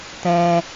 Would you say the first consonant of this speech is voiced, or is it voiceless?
voiceless